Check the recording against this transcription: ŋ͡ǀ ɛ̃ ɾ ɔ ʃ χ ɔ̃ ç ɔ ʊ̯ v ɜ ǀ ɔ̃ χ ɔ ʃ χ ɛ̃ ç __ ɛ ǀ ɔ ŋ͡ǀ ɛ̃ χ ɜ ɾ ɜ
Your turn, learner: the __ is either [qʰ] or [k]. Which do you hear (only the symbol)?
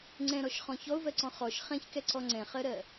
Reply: k